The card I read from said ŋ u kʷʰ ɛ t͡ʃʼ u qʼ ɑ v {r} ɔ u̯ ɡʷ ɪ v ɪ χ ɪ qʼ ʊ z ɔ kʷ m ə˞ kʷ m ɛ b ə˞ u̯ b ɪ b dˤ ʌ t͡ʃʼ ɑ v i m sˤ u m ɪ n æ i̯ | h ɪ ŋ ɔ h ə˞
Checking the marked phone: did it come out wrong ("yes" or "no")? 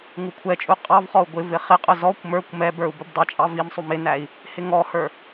yes